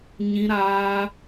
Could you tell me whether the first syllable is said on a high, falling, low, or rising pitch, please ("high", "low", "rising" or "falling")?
high